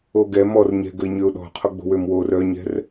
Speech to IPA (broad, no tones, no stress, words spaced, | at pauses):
oɡɛ mɔrɲɛ̤ ɡəɪ̯ɲøʊ̯ɗɔ̤qʰo ɡ͡bo̤wømwor œɲɛ̤r